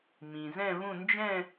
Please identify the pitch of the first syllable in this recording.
low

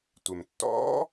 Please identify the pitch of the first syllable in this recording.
low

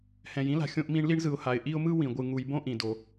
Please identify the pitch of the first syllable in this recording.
low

